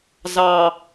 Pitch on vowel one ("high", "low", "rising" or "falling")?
low